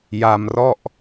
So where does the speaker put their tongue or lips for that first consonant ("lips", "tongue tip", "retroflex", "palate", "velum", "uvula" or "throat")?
palate